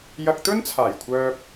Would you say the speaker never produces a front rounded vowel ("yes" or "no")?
no